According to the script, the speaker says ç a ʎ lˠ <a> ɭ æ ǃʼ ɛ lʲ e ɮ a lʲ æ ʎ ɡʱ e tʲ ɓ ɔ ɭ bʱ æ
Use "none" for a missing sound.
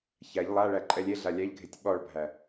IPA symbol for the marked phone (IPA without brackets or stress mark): a